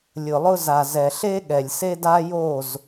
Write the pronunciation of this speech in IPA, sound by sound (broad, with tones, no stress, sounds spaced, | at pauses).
lʲ ʊ˨ lˠ ʊ˧ z a˨ z ɛ˨ ɬ e˦ ɠ ɛ˨ lʲ s e˦ d a˦ j o˦˨ z